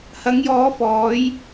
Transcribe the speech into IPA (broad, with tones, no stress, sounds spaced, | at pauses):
h ɐ˨˧ ŋ j ɔː˨˧ f ɔː˨˧ j